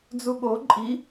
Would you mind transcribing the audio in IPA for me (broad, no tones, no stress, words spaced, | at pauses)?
d͡zuɠo ǃʼi